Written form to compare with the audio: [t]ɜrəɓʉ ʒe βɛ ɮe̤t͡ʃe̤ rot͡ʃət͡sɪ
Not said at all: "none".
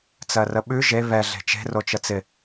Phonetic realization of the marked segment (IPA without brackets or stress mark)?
t͡s